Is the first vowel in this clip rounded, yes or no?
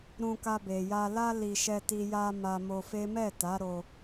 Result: yes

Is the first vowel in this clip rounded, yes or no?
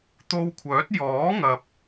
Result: yes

